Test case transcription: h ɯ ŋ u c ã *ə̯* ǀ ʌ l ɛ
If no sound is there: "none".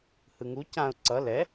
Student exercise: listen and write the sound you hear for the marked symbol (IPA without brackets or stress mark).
ʊ̯